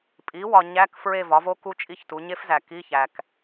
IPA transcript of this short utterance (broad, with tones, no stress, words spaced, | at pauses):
pʼi˩˥wɒ˨ ɲæ˧˥˧k fɹe˦˨vɒ˩˥vo˦˥ ku˦˥t͡ʃʼi˦˥çtu˩˥ ɲe˦˥fzæ˨ki˧˥˧ çæ˨k